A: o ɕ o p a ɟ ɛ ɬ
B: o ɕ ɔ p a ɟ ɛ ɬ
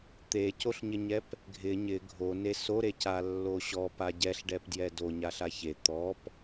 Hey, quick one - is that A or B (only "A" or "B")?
B